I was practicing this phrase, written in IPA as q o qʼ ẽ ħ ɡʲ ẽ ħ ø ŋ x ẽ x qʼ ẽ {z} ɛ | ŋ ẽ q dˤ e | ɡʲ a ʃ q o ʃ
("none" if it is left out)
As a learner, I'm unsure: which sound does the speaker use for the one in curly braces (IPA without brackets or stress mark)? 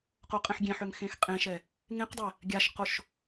ʃ